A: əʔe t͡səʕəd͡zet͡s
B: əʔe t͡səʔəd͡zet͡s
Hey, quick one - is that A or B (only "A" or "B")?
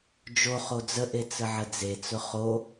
A